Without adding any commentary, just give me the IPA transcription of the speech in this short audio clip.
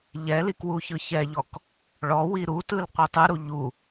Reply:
ʎ ɛ l i k w u ç ɯ ç ɛ ʎ ɔ k | ɭ ɔ w i ɾ u t ɯ l qʷ i tˤ ɯ ɾ u ʎ u

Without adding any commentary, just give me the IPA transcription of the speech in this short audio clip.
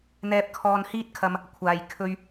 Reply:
n̪ ɛː˧ p̚ kʰ ɔː˧ n h iː˥ t̚ kʰ ɐ˧ m | kʷʰ aː˨ j kʰ ɵ˧ ɥ

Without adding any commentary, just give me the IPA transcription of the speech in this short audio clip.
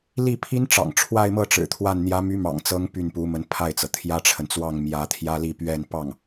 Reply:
l i˥˩ pʰ i˥ n ʈ͡ʂ ɑ̰˨˩ ŋ ʈ͡ʂʰ w a˥˧ ɪ̯ m ɤ˥˩ ʈ͡ʂ ɻ̩˨˩ t̪ʰ w a˥˩ n n̪ j ä˧˥ m y˧˥ m ɑ̰˨˩ ŋ t͡s ɤ˧˥ ŋ p y˥˩ n p u˧˥ m ə˧˥ n pʰ a˥˩ ɪ̯ t͡s ɤ˩ t̪ʰ j ä˥ ʈ͡ʂʰ ə˨ n t͡s w ɑ˥˩ ŋ m j ä˧˥ t̪ʰ j ä˥ l i˥˧ p ɥ ɛ˥˧ n p ɑ˥˩ ŋ

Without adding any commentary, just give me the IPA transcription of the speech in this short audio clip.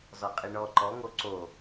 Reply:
z ɔ qʼ i ɳ ɔ ǃ ɔ ŋ o ǀ o

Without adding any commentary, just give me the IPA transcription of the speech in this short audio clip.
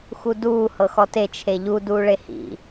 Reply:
x u d uː h ɤ x ɔ t e t͡ʃʰ e ʎ u d uː ɭ e h ḭ

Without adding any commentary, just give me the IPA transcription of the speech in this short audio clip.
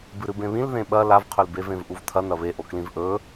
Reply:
b ɨ ɾ ɨ b ẽ β ĩ l ð ẽ ɓ ɐ l a v qʰ ɵ l b e v ẽ v ʔ u v tʰ ɐ n ɐ β e ʔ o k l ĩ v ʔ ɵ

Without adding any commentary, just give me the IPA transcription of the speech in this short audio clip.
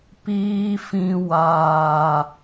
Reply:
p iː˦ f ĩ˦ w aː˦

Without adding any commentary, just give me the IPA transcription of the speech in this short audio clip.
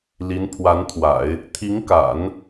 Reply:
l i˧˥ n pʰ w a˧˥ n t̪ʰ w a̰˨˩˦ ɪ̯ | t̪ʰ i˧˥ ŋ k a̰˨˩˦ n

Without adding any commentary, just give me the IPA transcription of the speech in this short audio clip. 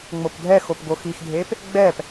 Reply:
ŋ͡m o p dʱ ɛ x o p ɡ o x i x dʱ e p | ɡ͡b ɛ p

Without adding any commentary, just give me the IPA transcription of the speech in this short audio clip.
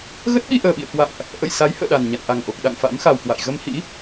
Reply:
ɣ ə˦˥ t̚ ɓ i˧ ʔ əː˨˩ ɓ ḭ˧˨ ə̯ k w a̰˧˨ ŋ ʔ | ʔ ə̰˧˨ j s a˨˦ j h ə̰ː˧˨ ɗ a˨˩ n ɲ a̰˧˨ n ʔ a˨˩ ŋ ʔ o˨˩ k̚ ɗ a̰˧˨ ŋ f a̰˧˥ m x a˨˩ w k w a̰˧˨ j ɣ ə˧ m h ḭ˧˥

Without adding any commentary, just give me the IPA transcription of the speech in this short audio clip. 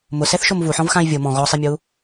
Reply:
m ʊ s ɛ θ ʃ o m v u ħ ɔ̃ v x ã i̯ vʲ ʊ m ɔ̃ ɣ ɔ sˤ e mʲ o u̯

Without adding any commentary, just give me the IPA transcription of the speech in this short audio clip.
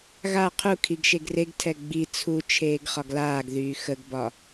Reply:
ɣ a qʰ u kʰ i ɡ ʃ e ɡ r e ɡ tʰ ɛ ɡ͡b i t͡sʰ u t͡ʃʰ eː ɡ χ ɒ ɡ l aː ɡ ð yː x ə ɡ b ɒ

